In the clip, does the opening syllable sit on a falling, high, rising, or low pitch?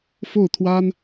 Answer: falling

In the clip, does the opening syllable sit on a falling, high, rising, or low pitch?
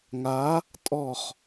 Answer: rising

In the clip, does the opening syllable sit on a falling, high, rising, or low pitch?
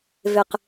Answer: low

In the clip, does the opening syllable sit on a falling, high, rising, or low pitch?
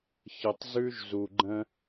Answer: low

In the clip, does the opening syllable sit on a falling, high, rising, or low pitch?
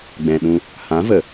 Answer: low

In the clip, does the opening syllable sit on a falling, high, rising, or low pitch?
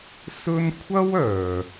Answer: high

